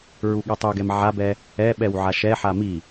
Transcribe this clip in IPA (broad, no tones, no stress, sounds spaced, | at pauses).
ɹ u ɠ ɛ tˤ u ɡ ɛ m ʕ a b ɛ | ɛ ɓ ɛ w ʕ a ʃ ɛ ħ a m i